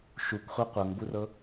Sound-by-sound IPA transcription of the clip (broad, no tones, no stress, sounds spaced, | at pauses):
ʃ u kʷ χʷ ɜ qʷ ɤ ŋ b u r ɤ